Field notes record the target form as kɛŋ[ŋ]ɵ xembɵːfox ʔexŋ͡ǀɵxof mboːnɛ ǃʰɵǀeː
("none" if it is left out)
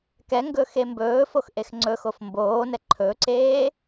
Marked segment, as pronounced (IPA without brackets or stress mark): ɡ